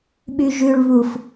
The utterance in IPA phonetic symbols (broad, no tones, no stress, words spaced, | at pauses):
ɓyʒʉɭ βuf